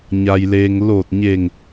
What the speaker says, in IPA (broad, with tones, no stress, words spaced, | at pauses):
ɲa˩jleː˩ŋ loː˧˩t̚ ɲe˧˩ŋ